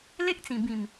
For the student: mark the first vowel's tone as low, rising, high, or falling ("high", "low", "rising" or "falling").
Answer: high